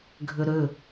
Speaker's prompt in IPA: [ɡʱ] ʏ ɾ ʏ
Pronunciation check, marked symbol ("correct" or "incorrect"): correct